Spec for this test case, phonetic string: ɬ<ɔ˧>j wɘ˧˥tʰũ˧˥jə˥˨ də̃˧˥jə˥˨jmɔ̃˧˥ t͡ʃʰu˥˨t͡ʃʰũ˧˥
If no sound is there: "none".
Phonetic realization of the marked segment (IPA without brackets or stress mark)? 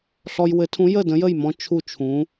ɔ˧